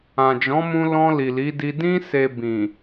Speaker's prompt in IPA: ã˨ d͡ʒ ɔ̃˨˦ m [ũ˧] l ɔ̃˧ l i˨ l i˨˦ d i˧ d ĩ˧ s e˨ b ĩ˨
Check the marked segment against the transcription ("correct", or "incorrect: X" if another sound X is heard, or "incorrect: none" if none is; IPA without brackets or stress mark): correct